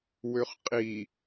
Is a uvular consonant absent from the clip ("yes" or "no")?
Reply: no